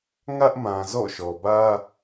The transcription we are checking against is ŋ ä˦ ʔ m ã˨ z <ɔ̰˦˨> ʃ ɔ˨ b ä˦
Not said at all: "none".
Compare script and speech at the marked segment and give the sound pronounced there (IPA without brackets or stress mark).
ɔ̰˦˨